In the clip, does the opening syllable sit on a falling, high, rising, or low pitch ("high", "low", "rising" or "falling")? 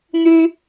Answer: high